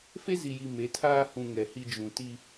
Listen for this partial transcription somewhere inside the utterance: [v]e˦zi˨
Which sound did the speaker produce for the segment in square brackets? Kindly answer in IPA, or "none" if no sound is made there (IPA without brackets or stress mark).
f